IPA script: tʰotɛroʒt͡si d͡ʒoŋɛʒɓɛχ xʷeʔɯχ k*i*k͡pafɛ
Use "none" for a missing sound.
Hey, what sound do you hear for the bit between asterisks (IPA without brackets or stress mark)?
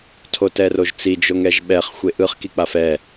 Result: i